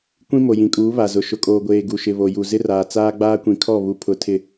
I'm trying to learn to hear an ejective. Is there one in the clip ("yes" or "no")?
yes